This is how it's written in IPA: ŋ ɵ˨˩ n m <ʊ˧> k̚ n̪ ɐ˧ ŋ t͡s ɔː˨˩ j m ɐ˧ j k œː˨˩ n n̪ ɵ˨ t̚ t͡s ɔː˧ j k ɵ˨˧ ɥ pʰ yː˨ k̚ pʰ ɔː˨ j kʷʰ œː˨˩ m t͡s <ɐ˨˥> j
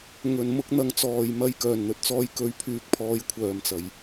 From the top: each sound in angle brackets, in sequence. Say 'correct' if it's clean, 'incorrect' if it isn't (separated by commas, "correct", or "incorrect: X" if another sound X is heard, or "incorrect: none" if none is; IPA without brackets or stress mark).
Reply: correct, incorrect: ɐ˨˩